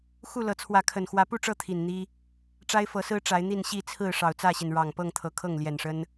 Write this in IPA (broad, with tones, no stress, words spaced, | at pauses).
xu˥˨lɤ˨˦ t͡sʰwä˨˦kʰə˨˩n xwä˨˦pu˥˨ʈ͡ʂɤ˥˨ t̪ʰi˨˩n n̪i˦ | ʈ͡ʂa˦ɪ̯fɤ˨˦sɹ̩˦ ʈ͡ʂa˨˦ɪ̯n̪i˥˨n ɕi˥˨t͡sʰɹ̩˥˨ ʂɑ˨˩ʊ̯t͡sä˥˨ɕi˩n ɻɑ˨˩ŋpɤ˥˨ŋt̪ʰɤ˨˩ kʰɤ˥˨ŋljɛ˨˩nʂə˦n